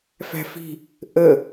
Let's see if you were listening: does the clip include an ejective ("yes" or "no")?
no